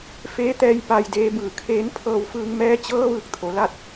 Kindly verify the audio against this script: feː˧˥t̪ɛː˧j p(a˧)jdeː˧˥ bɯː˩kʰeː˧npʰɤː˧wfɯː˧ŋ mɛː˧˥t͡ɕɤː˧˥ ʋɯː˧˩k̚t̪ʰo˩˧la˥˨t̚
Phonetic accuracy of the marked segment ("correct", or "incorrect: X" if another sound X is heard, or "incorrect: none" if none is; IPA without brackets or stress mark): correct